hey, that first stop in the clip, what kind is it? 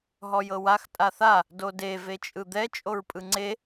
ejective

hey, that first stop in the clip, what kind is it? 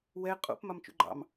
ejective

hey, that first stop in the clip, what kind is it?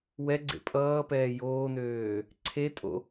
click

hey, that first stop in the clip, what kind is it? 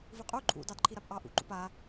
ejective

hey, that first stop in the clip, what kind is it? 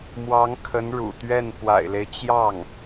aspirated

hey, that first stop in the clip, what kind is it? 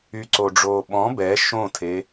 click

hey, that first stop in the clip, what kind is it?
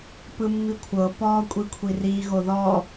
plain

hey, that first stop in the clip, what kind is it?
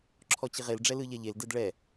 click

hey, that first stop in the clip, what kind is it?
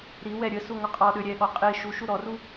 ejective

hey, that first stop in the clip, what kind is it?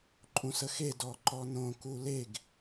click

